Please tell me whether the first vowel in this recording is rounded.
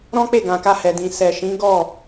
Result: yes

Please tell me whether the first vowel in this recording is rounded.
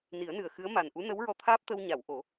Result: no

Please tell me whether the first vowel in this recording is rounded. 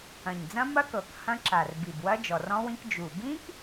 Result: no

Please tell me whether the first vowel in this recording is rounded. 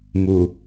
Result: yes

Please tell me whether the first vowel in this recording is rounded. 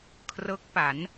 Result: no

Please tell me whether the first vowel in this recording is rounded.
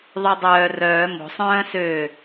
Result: yes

